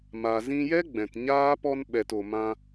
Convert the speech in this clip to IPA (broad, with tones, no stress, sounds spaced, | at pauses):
m a˨ z ĩ˧ j ɛ˦ ɡ͡b ɛ̃˨ t ɲ aː˦ p ɔ˧ n ɓ ɛ˨ t o˨ m ã˧